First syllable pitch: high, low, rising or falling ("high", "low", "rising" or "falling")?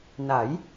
rising